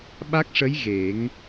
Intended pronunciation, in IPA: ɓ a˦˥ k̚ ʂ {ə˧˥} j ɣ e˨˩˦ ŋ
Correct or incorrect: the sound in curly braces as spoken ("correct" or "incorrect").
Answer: correct